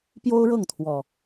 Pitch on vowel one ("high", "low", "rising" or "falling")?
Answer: high